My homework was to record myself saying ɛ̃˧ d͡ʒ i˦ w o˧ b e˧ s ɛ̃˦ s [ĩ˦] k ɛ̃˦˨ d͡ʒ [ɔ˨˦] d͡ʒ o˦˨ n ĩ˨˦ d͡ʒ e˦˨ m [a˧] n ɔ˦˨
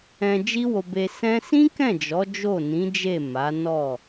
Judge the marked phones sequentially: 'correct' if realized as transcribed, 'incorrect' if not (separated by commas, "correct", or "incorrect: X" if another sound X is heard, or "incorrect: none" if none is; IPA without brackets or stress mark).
correct, correct, incorrect: a˨˦